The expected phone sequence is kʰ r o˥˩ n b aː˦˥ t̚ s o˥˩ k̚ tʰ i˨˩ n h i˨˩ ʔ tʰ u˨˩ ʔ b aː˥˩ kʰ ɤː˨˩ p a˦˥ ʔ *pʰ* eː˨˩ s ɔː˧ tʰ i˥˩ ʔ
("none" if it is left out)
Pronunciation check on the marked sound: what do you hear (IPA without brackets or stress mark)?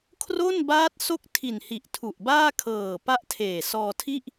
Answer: tʰ